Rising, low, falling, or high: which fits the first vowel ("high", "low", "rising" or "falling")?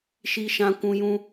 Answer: high